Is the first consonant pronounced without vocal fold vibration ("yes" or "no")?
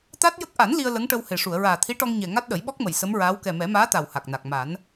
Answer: yes